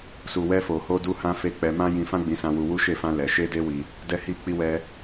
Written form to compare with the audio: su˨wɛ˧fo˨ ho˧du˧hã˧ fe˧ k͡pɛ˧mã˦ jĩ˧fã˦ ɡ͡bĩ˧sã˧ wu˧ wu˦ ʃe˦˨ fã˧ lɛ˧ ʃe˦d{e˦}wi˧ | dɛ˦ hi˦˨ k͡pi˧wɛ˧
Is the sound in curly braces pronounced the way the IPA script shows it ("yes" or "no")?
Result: yes